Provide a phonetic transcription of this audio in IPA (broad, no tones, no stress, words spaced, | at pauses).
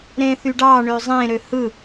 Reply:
ɾẽθyɖɑ ɳøzˤẽ ɾøhɯ